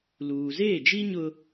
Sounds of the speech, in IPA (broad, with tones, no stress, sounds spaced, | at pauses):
l uː˨ z eː˦˨ d͡ʒ i˦ ɲ ʊ˦